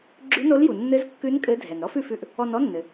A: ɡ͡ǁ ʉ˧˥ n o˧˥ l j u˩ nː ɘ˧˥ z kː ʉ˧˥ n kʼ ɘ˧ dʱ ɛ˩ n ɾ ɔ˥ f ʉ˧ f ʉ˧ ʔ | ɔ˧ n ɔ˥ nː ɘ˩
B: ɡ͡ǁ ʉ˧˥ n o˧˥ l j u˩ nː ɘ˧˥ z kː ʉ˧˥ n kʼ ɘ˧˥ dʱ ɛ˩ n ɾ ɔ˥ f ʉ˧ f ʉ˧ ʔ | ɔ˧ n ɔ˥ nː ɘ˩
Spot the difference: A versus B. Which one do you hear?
B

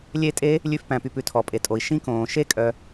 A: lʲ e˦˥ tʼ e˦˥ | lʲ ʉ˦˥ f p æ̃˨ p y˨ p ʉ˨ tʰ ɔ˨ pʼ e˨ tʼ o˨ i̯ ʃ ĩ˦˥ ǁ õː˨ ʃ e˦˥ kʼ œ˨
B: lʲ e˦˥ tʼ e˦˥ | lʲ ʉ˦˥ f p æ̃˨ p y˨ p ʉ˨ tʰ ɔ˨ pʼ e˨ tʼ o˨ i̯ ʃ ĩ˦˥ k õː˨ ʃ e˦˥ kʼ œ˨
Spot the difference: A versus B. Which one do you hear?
B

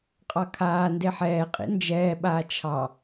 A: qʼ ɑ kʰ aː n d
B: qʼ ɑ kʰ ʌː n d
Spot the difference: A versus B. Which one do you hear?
A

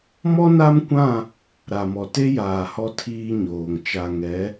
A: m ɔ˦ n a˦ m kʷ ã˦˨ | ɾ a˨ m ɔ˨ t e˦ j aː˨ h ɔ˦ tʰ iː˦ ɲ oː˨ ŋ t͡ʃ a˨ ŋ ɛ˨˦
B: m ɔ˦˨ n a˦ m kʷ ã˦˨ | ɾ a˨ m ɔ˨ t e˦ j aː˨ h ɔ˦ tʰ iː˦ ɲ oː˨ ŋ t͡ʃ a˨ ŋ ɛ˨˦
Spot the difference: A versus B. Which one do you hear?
A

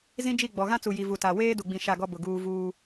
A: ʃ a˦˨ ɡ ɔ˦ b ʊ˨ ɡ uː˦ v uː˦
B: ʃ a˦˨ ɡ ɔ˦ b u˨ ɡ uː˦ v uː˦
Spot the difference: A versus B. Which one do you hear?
A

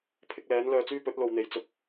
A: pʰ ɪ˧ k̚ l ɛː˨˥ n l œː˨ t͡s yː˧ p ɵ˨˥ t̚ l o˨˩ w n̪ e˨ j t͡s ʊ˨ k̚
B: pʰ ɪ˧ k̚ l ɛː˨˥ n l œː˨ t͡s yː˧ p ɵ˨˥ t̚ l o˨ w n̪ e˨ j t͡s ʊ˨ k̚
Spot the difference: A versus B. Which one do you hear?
B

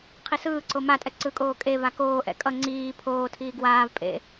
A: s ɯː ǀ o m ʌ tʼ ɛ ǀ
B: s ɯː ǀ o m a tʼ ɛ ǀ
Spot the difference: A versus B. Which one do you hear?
B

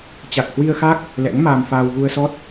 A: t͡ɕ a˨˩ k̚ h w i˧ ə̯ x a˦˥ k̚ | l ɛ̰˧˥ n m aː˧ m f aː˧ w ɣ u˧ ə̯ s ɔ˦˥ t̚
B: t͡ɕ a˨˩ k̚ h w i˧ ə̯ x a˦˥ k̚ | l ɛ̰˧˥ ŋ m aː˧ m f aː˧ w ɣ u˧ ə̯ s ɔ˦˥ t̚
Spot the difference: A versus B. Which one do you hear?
B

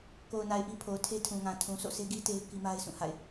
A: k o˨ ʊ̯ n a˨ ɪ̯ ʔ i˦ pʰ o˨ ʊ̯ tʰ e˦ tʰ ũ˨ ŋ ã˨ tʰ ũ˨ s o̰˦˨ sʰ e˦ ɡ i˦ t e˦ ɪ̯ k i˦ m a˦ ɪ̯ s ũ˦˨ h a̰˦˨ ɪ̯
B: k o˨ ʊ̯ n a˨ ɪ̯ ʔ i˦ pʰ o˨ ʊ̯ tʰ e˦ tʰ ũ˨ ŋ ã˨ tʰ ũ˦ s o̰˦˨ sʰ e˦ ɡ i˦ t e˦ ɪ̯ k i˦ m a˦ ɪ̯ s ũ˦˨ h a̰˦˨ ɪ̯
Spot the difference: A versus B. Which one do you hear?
A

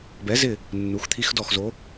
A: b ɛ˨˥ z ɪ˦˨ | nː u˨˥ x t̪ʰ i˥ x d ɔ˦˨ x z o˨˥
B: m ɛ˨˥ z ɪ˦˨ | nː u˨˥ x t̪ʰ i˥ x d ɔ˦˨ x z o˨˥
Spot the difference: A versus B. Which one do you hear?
A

